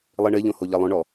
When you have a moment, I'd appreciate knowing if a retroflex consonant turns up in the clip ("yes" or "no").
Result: yes